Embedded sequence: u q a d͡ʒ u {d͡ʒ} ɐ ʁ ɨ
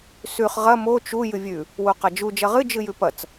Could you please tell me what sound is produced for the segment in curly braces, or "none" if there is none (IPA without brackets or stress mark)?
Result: d͡ʒ